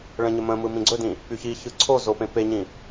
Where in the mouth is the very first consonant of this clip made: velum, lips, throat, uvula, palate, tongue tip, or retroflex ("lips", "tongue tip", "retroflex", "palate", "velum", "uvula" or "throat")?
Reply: retroflex